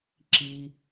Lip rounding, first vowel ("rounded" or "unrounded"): unrounded